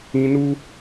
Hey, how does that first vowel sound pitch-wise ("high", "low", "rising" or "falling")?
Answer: high